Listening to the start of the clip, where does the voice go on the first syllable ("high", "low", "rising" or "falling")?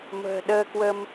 low